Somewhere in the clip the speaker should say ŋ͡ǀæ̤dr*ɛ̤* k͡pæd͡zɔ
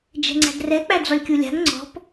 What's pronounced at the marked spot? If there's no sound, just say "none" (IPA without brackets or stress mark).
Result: ɛ